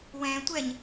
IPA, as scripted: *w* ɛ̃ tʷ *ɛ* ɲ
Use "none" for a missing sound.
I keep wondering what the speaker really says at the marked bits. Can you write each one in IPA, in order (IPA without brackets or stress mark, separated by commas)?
w, ɛ